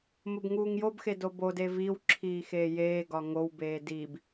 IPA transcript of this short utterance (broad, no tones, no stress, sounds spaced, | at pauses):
m o b ŋ uː ŋ j o b x e d o b o d e v i w ǁʰ iː x eː j eː ɡ ɒ ŋ o w b eː d i b